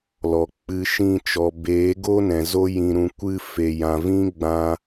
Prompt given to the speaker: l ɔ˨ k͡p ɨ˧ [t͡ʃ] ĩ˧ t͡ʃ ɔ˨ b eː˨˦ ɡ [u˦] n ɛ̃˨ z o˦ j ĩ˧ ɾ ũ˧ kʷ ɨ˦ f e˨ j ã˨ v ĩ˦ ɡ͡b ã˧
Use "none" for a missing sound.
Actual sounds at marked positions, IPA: ʃ, o˦

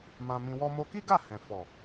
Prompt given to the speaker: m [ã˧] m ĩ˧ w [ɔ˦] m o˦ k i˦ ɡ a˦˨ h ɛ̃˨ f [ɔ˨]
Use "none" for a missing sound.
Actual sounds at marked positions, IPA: ã˧, ɔ˦, ɔ˨

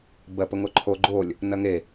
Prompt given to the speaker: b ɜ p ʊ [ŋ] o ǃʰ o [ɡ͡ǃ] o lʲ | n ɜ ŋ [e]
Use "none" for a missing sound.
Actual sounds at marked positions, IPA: ŋ, ɡ͡ǃ, e

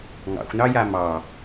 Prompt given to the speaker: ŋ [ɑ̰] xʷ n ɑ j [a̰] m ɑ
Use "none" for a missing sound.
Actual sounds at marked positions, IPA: ɑ̰, a

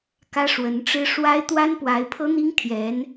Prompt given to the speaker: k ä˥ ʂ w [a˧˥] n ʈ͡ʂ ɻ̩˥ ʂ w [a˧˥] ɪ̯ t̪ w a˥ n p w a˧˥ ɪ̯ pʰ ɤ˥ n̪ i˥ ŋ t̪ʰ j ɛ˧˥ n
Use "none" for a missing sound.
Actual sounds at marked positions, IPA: ə˧˥, a˥

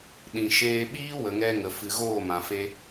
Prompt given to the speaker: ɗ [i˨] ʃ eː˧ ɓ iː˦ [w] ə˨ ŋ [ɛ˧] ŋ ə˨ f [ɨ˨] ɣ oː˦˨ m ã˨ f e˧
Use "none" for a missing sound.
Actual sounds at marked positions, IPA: ĩ˨, w, ɛ˧, ɨ˨

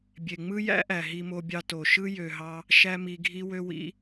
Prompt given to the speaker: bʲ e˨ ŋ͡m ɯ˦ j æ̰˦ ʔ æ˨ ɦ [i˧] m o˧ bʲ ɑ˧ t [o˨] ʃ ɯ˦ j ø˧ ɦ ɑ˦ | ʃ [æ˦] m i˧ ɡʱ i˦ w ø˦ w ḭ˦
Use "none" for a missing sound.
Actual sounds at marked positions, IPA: i˧, o˨, æ˦

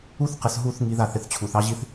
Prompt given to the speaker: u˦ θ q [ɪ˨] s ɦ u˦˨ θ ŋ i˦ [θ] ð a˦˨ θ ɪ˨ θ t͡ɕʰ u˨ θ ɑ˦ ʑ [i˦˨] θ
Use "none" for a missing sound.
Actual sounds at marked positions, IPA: ɪ˨, none, i˦

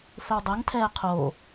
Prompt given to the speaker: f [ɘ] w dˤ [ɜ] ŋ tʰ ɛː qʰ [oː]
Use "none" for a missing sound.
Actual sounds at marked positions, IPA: ɘ, ɜ, oː

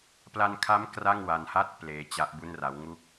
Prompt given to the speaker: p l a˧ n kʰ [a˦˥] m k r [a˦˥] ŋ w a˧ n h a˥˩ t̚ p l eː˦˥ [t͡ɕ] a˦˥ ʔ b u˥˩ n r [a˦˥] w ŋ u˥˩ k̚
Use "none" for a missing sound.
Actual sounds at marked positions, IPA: a˦˥, a˥˩, t͡ɕ, a˦˥

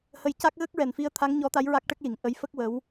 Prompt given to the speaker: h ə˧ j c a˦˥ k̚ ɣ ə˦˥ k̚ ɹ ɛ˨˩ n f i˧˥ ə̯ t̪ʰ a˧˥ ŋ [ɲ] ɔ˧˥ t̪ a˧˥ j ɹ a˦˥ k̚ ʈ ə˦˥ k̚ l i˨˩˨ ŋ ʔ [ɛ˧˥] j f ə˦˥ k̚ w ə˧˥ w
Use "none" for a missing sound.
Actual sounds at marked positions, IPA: ɲ, ə˧˥

